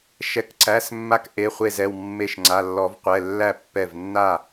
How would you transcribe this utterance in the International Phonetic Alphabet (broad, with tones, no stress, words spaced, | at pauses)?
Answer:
ʃɛ˩˧˩kǀæ˩˧˩s mːa˦kʔe˩˧˩χʷe˧˩zɛ˥˩w mːe˧˩ʃ ŋ͡ǀa˩˧˩lːɔ˨˩˦vqʷɛ˩˧˩ lːæ˥˩ pːɛ˧˩vnːa˥˩